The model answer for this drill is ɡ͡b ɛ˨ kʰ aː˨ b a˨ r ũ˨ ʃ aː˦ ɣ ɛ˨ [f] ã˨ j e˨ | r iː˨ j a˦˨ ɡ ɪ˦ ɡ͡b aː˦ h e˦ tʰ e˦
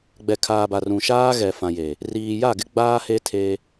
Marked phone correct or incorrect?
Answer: correct